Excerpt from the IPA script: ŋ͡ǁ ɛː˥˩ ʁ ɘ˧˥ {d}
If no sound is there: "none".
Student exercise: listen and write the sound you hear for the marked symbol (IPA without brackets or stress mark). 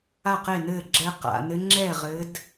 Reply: d